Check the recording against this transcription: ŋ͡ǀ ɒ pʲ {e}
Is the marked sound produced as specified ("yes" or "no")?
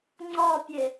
yes